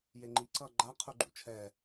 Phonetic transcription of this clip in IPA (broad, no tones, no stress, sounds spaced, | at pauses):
j e ŋ͡ǃ i ǀ ʌ ɡ͡ǃ a qʰ u ɡ͡ǃ ṵ t͡ʃʰ ɛ